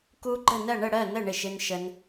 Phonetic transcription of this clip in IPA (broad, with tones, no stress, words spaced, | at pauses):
ku˦ɡ͡ǃə˥˨nɜ˥˨ ɳə˥˨ɽɜ˥˨ nə˥˨ ɳɪ˥˨ʃɪ˦nʃə˦n